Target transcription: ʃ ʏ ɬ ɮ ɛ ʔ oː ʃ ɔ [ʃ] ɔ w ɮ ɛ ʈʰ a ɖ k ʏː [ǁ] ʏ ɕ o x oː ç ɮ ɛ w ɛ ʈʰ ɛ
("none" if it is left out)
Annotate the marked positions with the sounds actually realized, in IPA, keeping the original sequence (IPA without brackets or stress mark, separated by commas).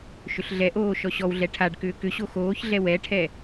ɕ, k